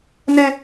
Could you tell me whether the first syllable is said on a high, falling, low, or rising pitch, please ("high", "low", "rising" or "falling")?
high